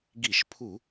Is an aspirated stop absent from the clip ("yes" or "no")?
no